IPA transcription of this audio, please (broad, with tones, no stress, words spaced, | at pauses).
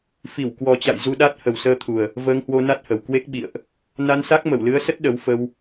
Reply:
fi˧˩w kwɔ˨˩t͡ɕa̰˧˨j zu˧ɗa˦˥t̚ hə˨˩wsəː˧t̪ʰu˨˩ə̯ | vəː˧ŋhwo˧na˦˥t̚hə˨˩w kwe˦˥k̚ ɓḭ˧˨ə̯ʔ | na˧nsa˦˥k̚ mə˧˩wlɨ˨˦ə̯sə˦˥t̚ ɗə˨˦wfə˧w